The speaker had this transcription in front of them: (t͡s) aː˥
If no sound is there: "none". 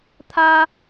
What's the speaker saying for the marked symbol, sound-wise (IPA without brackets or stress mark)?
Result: t̪ʰ